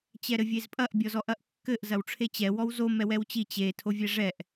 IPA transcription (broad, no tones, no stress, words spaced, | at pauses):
t͡ɕɛɾɘvʲezpʼɐʔ bʲɔzɔʔɐʔkːɘʔ zɐwʈ͡ʂʰet͡ɕɛ wɔwzo mɛwɛwt͡ɕi t͡ɕe tʰovʲɛʐɛʔ